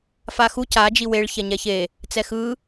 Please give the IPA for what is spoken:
f a x u c a d͡ʒ i w e ɭ ç ɛ ɲ ɛ ç e | t͡s ɛ x ɯ

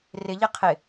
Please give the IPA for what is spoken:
r ɪ ʎ ɪ qʰ ɪ

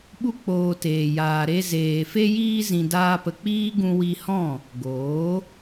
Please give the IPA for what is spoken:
ɓ u˦ k͡p oː˧ t eː˨ j aː˨ ɾ e˧ z eː˨ f e˦ j iː˧ z ĩ˨ d aː˧ p ə˨ k͡p iː˦ ɡ ũ˧ w i˧ h ɔ̃˦˨ | ɡ oː˨˦

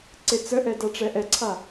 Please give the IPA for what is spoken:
ǀ e t͡s ə ʔ ɛ d a ʈ͡ʂ ɛ ʔ ɛ ǀʰ a

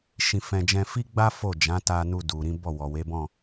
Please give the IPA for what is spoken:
ʃ ĩ˧ f ɛ̃˧ d͡ʒ ɛ̃˧ f i˦ ɡ͡b a˦ f o˦˨ d͡ʒ ã˨˦ t a˧ n u˧ d u˨ ɾ ĩ˨˦ b ɔ˦˨ w ɔ˨ w e˨˦ b ɔ̃˦˨

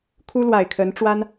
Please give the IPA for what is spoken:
kʰ u˥ l w a˨˩ ɪ̯ kʰ ə˧˥ n ʈ͡ʂ w a˥ n

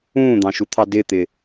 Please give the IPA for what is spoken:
ũː d̪ ɑ̃ ʃ u t̪ʰ ɑ d ɪ t̪ ɪ

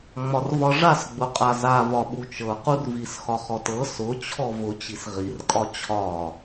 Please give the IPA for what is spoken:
ŋ͡m ɒ r v ɒ ʐ a s ɡ͡b ʊ qʼ a z a v ɒ ɓ u t͡ʃ ɤ q u r v i s x ɒ χ ɔ t ɤ s ʊ t͡ɕʰ ɔ v ʊ t͡ɕ i s ʁ i r kʼ ɒ t͡ɕʰ ɒ

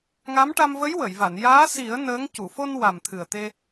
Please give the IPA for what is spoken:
ŋ a˧˥ m ʈ a˧ m v ə˧˥ j w ə˨˩˨ j v a˨˩˨ n j aː˧˥ s i˨˩˦ ə̯ n əː˧˥ ŋ c u˨˩˨ f o˧ n w a˨˩ m t̪ʰ ɨ˨˩ ə̯ t̪ e˧

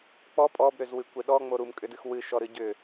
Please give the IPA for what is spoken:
k͡p ɔ pʼ ɔ b ɾ ʏ z w ɨ kʷ e ɗ ɔ ŋ͡m o ɾ u m kʼ ʏ d ɨ x w ɨ ʃ ɔ ɾ ɨ ɟ ʏ

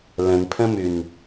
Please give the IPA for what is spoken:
l ə̃ n pʰ ə̃ m ʉ n

